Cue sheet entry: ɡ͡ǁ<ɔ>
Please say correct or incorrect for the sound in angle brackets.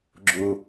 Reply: incorrect: ʊ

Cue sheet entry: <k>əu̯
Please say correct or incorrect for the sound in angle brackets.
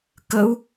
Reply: correct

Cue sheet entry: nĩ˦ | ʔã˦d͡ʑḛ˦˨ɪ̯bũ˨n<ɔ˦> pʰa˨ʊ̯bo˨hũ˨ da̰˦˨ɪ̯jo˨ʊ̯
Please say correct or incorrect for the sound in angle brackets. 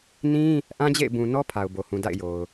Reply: correct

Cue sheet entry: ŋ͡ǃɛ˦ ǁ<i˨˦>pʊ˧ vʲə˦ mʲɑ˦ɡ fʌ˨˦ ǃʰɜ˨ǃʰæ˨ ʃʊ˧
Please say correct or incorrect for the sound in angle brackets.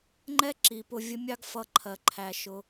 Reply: correct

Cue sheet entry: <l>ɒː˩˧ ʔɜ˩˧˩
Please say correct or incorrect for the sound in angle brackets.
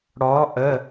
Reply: incorrect: ɽ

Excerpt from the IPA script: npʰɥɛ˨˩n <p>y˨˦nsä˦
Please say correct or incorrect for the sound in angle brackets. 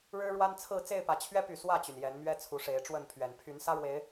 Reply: incorrect: pʰ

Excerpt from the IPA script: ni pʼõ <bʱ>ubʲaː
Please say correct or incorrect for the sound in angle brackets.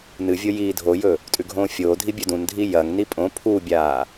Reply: incorrect: pʰ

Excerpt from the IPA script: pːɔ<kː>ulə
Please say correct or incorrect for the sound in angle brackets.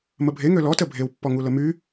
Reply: incorrect: ŋ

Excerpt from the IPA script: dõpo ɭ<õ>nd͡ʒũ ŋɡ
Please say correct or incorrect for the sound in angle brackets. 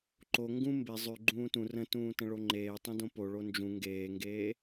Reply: incorrect: o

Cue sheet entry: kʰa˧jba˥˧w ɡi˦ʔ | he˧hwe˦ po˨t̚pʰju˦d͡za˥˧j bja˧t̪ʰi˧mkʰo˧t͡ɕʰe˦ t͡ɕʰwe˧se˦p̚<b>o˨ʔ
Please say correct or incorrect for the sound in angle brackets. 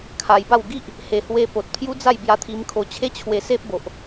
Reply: correct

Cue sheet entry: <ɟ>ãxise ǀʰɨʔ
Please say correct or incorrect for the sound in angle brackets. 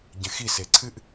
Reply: correct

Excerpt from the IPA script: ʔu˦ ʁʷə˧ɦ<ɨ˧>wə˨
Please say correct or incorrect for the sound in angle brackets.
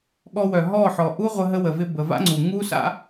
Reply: incorrect: ə˧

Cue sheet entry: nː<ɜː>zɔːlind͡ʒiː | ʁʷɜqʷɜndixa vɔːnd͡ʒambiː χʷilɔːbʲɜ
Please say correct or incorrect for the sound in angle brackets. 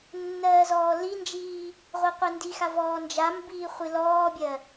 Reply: correct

